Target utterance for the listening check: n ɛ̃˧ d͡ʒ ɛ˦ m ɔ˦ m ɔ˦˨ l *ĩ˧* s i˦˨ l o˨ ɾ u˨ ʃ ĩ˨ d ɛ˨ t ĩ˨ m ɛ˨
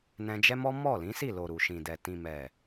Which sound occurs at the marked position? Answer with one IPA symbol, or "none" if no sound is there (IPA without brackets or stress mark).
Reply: ĩ˨˦